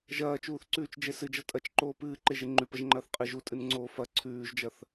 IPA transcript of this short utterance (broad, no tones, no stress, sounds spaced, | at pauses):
ʒ ɐː t͡ʃ uː θ ǀ ʉː t͡ʃ d͡ʒ e s ɨ d͡ʒ ɐ tʼ ɐ t͡ʃ ǃ oː p ɨː ǃ e ʒ e ŋ͡ǃ ʉ p ɐ ʒ ŋ͡ǃ ɐː θ qʼ ɨ ʒ u tʼ ɨ n ŋ͡ǀ oː f ɐ ǀʰ ʉː ʒ d͡ʒ ɐ θ